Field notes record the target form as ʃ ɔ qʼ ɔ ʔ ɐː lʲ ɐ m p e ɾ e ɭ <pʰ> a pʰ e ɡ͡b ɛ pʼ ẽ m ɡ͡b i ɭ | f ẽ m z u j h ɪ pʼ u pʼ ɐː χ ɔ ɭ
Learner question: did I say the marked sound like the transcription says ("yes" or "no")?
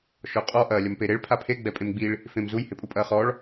yes